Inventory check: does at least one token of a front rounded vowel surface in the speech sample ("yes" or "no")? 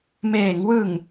no